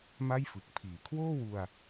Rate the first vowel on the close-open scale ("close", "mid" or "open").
open